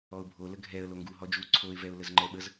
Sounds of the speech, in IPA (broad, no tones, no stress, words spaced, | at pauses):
ɔʊ̯bʱo ləɡʱɛə̯ loŋɡu ɦɔd͡ʒu ǀʰoɪ̯ vɛʊ̯ləzŋ͡ǃɛɓəz